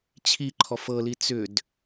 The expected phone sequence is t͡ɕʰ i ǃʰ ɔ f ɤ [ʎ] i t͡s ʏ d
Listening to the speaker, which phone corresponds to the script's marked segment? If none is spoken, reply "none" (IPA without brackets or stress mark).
l